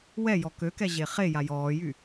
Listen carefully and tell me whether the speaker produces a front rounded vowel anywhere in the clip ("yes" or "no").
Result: yes